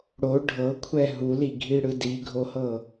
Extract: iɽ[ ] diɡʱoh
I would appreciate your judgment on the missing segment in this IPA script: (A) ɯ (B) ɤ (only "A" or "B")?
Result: A